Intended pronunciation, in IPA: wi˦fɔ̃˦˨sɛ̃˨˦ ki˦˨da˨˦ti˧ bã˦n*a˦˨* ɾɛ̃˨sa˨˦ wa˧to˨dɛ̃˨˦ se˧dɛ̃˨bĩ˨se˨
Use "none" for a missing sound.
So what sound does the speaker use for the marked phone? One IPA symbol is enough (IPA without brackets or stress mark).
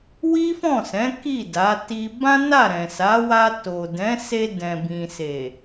a˦˨